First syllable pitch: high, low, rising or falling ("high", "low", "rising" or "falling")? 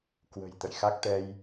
low